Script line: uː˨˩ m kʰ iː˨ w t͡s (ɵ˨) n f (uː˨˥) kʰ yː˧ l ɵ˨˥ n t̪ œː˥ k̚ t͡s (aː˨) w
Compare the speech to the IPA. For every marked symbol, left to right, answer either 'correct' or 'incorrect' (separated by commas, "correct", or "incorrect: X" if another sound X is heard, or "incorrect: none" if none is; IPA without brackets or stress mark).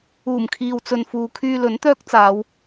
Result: correct, incorrect: uː˨, incorrect: aː˨˧